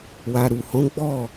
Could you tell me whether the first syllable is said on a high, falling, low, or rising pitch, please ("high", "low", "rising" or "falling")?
low